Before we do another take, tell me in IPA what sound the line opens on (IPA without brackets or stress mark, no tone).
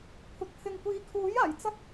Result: kʷʰ